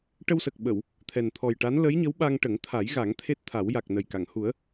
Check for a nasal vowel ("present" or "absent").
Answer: absent